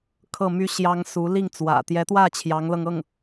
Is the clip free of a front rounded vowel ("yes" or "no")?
no